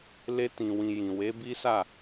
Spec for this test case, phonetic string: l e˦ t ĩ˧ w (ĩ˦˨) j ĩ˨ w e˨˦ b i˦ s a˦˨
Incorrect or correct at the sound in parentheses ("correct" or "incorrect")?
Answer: incorrect